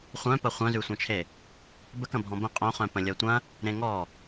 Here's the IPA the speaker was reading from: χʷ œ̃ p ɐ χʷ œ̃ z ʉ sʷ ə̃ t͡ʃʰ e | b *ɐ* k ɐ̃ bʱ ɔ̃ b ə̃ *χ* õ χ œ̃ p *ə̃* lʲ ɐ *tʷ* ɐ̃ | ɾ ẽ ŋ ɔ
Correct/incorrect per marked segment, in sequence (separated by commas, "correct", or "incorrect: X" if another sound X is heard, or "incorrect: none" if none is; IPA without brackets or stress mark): incorrect: ə, incorrect: qʼ, correct, correct